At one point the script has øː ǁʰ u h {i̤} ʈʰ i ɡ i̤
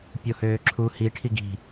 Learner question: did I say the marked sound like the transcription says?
no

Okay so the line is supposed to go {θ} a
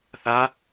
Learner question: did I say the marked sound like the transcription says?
yes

